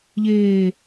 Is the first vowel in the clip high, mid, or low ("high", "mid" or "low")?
mid